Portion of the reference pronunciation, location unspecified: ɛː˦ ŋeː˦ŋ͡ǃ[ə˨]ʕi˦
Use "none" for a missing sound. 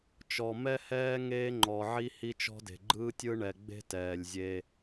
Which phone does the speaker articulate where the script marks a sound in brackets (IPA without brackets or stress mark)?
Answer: ɔ˨